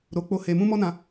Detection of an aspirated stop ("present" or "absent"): absent